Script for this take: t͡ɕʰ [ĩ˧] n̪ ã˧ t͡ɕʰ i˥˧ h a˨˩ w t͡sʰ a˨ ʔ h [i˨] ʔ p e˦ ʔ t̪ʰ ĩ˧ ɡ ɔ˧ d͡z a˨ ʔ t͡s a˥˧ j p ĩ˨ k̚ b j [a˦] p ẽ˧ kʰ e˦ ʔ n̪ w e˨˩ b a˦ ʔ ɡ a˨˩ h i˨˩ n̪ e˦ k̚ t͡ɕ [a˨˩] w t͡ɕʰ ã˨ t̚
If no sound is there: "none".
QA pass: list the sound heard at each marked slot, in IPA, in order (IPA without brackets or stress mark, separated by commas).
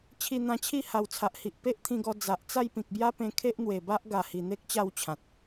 i˧, i˨, a˦, a˥˧